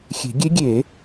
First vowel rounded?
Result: no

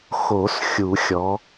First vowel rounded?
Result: yes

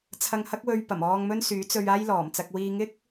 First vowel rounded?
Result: no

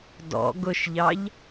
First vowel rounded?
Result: yes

